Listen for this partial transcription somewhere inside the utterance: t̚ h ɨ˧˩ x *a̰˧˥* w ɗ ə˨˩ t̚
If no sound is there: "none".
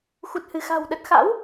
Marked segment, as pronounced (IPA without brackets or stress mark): a̤˨˩